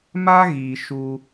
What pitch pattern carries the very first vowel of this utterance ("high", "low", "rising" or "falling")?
high